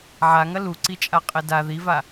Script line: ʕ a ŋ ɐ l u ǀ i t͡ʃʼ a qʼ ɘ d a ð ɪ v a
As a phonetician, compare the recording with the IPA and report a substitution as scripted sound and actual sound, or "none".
ɪ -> i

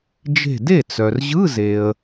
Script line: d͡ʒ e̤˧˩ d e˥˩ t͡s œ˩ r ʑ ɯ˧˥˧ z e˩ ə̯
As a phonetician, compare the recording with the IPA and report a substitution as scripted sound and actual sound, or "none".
none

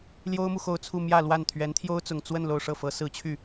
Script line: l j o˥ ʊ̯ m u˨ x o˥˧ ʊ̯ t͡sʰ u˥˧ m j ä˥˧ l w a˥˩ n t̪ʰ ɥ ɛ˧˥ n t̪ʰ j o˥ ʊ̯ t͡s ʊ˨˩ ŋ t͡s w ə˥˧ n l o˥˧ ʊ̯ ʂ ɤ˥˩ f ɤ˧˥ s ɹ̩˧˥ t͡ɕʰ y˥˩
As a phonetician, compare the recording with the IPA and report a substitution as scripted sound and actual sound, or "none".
none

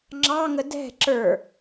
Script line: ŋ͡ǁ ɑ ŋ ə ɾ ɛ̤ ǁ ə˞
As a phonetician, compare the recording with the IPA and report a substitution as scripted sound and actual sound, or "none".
ɾ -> d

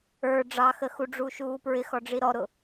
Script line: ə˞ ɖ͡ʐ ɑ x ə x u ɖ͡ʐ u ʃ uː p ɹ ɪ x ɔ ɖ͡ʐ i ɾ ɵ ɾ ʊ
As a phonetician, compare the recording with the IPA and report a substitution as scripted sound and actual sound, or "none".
ɵ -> ɔ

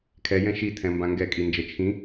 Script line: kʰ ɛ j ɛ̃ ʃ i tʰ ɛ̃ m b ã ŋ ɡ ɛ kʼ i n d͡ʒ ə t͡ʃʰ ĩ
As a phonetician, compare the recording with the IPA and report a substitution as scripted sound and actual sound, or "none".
none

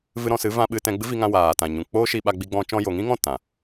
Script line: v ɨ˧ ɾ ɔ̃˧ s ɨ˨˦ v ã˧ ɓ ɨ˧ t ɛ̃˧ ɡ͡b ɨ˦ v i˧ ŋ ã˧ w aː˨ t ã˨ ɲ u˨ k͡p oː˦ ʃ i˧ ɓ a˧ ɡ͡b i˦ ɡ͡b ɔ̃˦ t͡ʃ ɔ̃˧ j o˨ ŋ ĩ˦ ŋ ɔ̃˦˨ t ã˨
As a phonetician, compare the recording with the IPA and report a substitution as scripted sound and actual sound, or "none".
u˨ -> ũ˨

